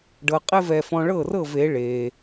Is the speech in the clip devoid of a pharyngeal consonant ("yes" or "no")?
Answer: yes